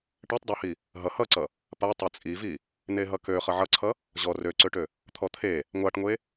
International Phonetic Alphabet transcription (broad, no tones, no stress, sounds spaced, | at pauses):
ʈ ɛ tˤ dˤ ɛ h i | ɦ ʌ h ʌ ǀ ʌ | p a tˤ e t͡sʼ i v i | n e ɦ ʌ k ø χ ʌ ʕ ʌ ǀʰ ʌ | ʑ ɔ r ø ǀ ø ʈ ø | t̪ʰ ɔ t̪ʰ e | ŋʷ a ʈ ŋʷ e